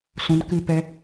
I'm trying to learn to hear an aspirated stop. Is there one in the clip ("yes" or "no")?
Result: no